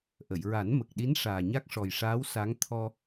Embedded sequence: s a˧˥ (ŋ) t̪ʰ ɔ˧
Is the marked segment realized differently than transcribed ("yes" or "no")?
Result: no